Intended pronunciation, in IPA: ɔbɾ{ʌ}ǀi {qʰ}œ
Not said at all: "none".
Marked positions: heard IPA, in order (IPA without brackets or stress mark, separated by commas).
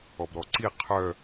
ɔ, qʰ